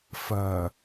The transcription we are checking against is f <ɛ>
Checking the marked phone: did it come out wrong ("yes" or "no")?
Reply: yes